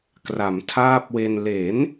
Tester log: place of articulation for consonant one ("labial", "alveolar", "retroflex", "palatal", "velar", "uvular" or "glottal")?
velar